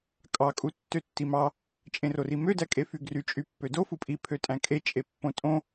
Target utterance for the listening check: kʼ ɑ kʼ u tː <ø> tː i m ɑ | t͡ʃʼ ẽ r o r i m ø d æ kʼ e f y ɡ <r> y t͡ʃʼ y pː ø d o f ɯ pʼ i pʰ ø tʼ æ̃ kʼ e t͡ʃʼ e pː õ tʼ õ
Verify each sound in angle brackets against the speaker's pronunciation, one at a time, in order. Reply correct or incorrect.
correct, correct

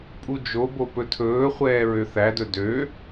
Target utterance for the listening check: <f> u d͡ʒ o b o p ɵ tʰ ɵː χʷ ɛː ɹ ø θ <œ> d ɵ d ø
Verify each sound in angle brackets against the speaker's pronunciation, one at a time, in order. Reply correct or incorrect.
incorrect, incorrect

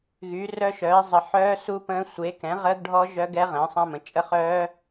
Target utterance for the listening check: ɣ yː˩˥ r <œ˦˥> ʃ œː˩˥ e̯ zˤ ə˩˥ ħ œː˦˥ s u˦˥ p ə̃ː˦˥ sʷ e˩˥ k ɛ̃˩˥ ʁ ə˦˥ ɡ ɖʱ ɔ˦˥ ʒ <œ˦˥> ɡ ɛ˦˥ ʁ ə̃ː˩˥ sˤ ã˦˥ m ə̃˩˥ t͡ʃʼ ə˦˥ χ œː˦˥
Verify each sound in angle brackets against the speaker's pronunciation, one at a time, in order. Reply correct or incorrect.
correct, correct

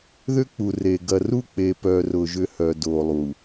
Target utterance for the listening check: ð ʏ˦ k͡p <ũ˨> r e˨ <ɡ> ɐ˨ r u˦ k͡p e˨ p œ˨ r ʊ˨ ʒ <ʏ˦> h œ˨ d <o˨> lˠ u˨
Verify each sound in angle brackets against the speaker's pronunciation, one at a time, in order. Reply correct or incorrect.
incorrect, correct, correct, correct

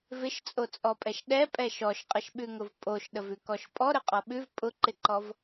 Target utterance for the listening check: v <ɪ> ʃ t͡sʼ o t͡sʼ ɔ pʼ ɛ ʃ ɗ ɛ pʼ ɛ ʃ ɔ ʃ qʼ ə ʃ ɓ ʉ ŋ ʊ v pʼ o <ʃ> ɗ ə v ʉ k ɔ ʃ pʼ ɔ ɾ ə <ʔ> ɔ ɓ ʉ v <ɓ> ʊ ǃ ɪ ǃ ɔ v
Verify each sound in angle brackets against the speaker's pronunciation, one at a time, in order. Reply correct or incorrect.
correct, correct, incorrect, incorrect

